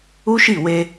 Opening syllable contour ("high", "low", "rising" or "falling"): high